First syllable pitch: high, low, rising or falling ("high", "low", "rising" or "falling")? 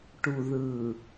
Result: low